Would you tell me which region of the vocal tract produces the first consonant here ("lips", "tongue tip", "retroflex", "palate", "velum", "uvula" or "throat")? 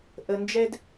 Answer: throat